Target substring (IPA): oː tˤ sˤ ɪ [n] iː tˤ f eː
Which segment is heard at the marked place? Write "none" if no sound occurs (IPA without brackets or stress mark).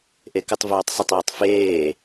tˤ